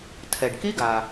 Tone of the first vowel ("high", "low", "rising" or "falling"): low